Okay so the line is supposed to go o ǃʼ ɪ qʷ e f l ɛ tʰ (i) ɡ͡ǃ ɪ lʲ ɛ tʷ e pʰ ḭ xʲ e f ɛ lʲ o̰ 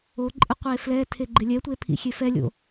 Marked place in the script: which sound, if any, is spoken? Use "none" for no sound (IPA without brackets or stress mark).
e